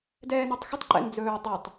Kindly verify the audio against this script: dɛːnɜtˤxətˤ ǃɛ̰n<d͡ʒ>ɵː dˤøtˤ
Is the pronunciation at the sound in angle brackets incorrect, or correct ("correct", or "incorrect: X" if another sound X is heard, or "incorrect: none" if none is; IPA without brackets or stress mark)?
incorrect: d͡z